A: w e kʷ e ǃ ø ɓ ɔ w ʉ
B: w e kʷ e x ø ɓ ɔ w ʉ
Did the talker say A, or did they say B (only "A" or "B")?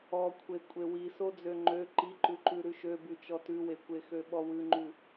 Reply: B